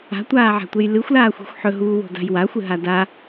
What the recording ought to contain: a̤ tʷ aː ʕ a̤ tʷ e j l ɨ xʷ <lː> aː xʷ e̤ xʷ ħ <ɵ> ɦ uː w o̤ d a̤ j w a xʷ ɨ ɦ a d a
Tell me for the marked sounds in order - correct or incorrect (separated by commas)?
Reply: incorrect, correct